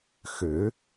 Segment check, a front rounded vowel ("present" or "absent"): present